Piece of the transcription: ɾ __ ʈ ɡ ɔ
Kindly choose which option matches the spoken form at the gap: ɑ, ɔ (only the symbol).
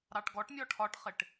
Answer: ɑ